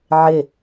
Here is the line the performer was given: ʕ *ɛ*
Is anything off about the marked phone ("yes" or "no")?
yes